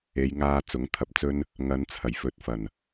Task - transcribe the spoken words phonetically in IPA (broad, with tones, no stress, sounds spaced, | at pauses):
e˨˧ j ŋ aː˧ t͡s ʊ˨˥ ŋ t̪ʰ ɐ˧ p̚ t͡s ɵ˥ n | ŋ ɐ˨˧ n t͡sʰ ɐ˨˩ j f ɵ˨ t̚ f ɐ˨˩ n